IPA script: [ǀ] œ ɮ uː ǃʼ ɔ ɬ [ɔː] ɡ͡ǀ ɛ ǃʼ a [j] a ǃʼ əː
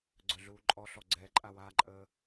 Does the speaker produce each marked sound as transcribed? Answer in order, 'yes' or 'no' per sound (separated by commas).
no, no, no